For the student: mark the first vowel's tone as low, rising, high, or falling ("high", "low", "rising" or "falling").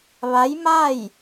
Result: rising